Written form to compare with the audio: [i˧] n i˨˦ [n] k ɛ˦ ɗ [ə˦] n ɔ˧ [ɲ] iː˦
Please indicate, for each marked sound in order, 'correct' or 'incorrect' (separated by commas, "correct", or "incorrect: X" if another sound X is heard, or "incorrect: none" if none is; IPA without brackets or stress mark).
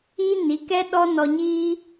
incorrect: i˦, incorrect: none, incorrect: ɔ˦, correct